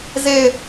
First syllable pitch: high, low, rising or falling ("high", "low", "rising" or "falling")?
falling